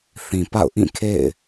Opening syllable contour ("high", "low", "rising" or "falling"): low